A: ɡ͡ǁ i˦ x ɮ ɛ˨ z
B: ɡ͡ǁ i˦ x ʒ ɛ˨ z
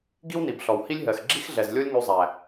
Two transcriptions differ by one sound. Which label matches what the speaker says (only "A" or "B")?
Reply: A